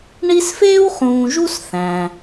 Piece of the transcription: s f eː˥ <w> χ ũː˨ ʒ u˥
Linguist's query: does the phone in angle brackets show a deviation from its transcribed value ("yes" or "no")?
no